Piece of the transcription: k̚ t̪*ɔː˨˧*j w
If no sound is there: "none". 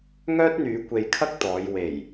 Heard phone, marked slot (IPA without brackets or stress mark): ɔː˨˧